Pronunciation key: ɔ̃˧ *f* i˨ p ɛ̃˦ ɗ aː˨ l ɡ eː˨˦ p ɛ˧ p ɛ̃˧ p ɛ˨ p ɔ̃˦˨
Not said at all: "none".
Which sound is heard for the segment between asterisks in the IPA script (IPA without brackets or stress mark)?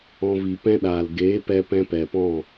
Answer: v